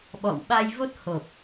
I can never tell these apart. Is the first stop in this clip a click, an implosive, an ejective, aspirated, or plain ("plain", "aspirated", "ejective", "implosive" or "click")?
implosive